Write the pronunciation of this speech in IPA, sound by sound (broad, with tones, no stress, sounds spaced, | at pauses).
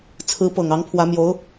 t͡sʰ ɹ̩˧˥ p ɤ˨˩ ŋ ɑ˧˥ ŋ pʰ w ä˧˥ m j o˧˥ ʊ̯